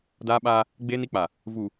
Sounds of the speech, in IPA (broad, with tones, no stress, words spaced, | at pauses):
daː˦ɓaː˦ | ɡ͡beː˦ni˦k͡pa˨ | vu˨